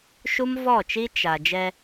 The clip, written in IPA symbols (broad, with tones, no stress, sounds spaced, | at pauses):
ʃ u˦ m v ɔ˦˨ t͡ʃ i˦ t͡ʃ a˨ d͡ʒ ɛ˦